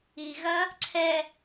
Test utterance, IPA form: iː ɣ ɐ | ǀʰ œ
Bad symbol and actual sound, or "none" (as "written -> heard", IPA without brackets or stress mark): œ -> ɛ